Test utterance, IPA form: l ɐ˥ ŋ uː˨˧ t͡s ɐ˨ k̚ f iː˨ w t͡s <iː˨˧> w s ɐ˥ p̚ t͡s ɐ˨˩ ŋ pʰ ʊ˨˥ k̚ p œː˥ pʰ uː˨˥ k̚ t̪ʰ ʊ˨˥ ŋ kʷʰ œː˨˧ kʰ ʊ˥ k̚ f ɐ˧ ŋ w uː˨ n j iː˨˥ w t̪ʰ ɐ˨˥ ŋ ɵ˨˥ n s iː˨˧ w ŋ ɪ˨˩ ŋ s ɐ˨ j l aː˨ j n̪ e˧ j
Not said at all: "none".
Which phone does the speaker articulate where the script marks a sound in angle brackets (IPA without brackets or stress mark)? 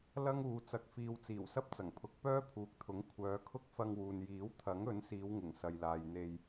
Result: iː˨˩